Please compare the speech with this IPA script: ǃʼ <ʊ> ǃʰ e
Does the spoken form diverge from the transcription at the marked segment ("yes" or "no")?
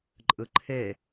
yes